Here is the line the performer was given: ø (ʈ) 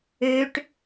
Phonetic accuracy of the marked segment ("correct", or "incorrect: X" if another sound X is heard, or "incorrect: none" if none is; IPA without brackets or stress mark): correct